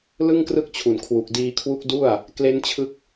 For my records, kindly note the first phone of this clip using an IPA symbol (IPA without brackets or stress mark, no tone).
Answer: l